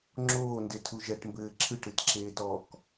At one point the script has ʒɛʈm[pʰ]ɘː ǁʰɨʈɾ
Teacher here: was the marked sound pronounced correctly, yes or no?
no